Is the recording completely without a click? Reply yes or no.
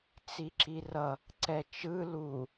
no